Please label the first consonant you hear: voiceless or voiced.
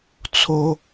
voiceless